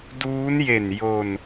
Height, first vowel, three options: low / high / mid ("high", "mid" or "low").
high